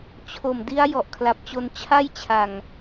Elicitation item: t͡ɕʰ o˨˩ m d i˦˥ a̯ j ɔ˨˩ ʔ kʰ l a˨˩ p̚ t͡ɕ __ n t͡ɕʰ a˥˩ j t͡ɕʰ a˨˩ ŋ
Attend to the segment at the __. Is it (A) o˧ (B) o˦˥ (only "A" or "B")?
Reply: A